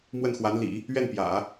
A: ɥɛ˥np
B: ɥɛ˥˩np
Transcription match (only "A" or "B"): B